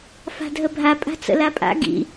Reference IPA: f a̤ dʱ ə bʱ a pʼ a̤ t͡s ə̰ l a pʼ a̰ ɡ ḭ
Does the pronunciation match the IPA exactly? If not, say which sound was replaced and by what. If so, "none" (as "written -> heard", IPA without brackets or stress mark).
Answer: none